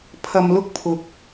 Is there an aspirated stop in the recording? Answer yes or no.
yes